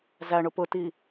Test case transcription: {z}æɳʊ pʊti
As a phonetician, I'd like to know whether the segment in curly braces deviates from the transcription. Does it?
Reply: no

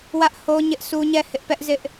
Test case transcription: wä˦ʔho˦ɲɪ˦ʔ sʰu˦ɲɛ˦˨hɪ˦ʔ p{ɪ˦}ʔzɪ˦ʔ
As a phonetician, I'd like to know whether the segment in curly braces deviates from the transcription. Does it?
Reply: yes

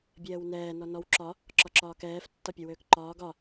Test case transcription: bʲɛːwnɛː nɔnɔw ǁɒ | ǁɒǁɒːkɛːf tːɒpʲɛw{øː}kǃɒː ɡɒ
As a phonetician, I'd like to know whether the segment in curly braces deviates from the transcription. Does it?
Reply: no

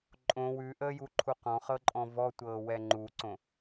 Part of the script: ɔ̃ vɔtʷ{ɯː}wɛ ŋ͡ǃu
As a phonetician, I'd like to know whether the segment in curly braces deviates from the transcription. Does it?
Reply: yes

